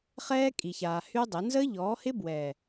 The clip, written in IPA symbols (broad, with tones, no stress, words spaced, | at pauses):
χɛː˦kʼi˨çaː˨ hy˦dˤɪ˨˦ nzəː˦ʎɔː˨˦hɪ˦bwɛː˨